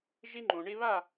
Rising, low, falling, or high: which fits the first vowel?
high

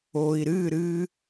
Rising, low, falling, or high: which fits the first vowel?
low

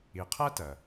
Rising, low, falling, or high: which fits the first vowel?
low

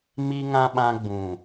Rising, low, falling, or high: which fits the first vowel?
high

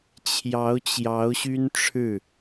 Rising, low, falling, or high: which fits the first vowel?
rising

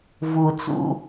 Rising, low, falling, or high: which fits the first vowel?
low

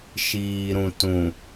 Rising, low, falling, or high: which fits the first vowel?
low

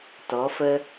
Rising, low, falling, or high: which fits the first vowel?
rising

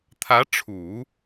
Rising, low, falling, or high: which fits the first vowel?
rising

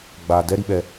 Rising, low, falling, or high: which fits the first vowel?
low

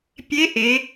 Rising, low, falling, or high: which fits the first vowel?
rising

